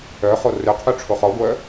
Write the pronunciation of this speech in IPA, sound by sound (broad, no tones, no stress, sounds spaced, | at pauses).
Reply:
œ χ o r ø qʰ y ʈ͡ʂʰ o χ ɔ ɡʷ œ